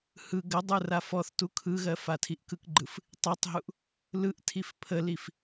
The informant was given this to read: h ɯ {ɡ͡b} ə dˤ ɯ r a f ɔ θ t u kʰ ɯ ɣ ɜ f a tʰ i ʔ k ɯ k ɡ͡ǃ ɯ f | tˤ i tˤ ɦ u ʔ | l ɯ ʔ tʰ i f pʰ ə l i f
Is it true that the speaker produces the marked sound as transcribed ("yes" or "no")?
no